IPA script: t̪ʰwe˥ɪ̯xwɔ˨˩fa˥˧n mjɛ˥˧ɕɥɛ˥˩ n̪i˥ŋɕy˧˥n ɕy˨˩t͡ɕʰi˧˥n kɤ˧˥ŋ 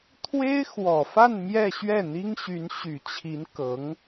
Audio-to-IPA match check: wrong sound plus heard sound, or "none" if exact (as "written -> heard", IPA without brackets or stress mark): none